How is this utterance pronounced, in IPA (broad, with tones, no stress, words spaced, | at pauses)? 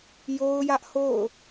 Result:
jo˦ʊ̯jä˦ʔho̰˦˨ʊ̯